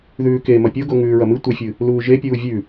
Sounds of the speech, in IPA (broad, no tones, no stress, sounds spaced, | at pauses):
ð ʉː k e m ɐ pʲ o ɡ o ŋ ʉː ɹ ɐ m ɨ tʷ e fʲ ɨ | l uː ʒ e pʲ uː vʲ ʉ